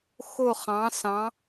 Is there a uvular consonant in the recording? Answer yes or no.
yes